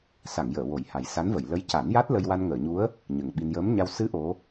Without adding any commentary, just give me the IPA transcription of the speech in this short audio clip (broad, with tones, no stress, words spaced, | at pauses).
sa˨˩˨ŋjəː˨˩˨ wo˨˩˦jha˨˩j sa˧˥nvə˨˩˨j lə˧˥jca˨˩˦nja˦˥t̚ lə˧jwa˧nŋəː˨˩˨ɲu˧˥ə̯ | ɲə˨˩ŋɓi˧n jəː˧˥mɲa˧w sɨ˧˥ ʔo˧˥